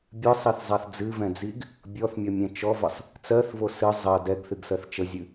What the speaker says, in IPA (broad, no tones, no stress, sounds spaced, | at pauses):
bʲ ɨ sˤ i θ zˤ a θ d͡z ɨ v ɛ̃ d͡z i ɡ | bʲ ɔ θ mʲ ɔ mʲ ɛ̃ t͡ʃ ɔ v ə sˤ | t͡s ɜ θ v o s ɨ zˤ ɜ d ɛ ɡ θ ɨ ɡ s ɜ θ t͡ʃ ə zʲ ɨ